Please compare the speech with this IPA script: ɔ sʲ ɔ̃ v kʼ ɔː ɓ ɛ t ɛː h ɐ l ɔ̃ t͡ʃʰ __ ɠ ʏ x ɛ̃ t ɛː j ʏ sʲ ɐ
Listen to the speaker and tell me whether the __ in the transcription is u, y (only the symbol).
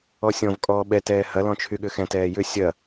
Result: y